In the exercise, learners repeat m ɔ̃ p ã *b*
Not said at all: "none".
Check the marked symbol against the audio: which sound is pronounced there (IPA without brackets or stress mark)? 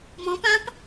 p